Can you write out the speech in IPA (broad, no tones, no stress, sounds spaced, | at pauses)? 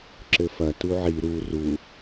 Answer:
ǁ ɘ f ɐ t u ʕ i ɾ u r u